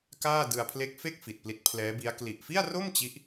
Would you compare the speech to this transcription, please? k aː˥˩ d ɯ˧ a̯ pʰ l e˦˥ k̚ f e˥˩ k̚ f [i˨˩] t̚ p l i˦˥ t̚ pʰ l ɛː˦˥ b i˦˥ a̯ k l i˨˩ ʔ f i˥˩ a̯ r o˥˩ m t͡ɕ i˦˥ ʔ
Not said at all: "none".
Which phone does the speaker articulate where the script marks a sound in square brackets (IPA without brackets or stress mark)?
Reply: i˨˩